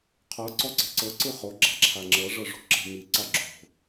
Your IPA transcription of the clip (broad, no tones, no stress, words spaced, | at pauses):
qʰɤ ǀɔǀe̤ǀɤ ǀɯχo ɡ͡ǁa̤ǁʰaŋ͡ǁɤ ʐɤʐo̤ǁe̤ mi ǀaɡ͡ǁo̤